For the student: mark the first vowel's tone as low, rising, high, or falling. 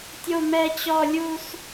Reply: low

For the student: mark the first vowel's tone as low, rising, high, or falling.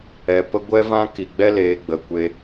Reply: low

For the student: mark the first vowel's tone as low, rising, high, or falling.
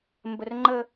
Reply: high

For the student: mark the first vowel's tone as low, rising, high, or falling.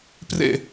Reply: falling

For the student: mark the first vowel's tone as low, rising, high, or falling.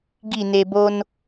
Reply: falling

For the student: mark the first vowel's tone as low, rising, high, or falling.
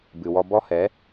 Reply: low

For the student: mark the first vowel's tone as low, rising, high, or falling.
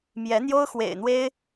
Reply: rising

